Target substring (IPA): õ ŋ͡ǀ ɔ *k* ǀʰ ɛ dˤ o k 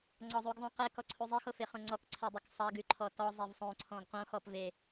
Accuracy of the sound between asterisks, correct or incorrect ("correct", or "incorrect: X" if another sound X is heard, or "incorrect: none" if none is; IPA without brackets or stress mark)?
correct